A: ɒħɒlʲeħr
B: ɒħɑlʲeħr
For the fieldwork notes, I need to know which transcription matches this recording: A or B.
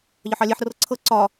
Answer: B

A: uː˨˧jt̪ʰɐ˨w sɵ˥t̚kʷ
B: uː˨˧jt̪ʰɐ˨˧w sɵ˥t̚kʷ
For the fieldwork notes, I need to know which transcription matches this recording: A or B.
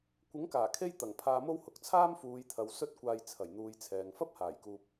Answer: A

